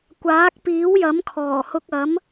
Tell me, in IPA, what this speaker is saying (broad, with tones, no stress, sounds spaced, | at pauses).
kʷ aː˨˥ k̚ p iː˨˥ w j ɐ˨˥ m kʰ ɔː˨˩ h ʊ˧ k̚ ɐ˨˥ m